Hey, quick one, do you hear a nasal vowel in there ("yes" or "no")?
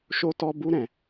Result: yes